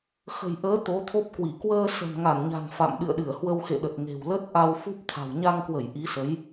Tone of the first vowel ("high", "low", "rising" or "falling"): low